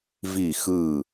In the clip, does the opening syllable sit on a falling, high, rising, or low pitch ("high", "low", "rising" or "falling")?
falling